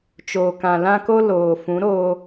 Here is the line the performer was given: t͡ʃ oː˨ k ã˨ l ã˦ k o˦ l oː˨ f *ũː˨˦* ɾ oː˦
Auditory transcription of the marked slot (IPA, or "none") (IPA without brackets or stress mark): ũ˨˦